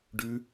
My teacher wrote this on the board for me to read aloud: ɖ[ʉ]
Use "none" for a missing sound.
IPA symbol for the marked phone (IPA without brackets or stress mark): ʉ